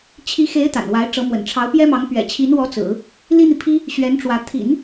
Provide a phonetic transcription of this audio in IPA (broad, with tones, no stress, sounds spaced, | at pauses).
t͡ɕʰ i˧˥ x e˧˥ ɪ̯ t̪ a̰˨˩ n w a˧˥ ɪ̯ ʈ͡ʂ ɤ˧˥ m w ə̰˨˩ n ʈ͡ʂʰ ɑ˧˥ ʊ̯ p j ɛ˥ m ɑ˧˥ ŋ p ɥ ɛ̰˨˩ t͡ɕʰ i˧˥ n w ɔ˧˥ t͡s ɹ̩˨˩˦ | l i˥ n̪ i˨ pʰ i˥ | ɕ ɥ ɛ˧˥ n ʈ͡ʂ w ä˧˥ t̪ʰ ḭ˨˩˦ n